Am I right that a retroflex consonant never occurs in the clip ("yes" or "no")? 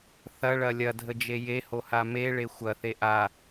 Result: no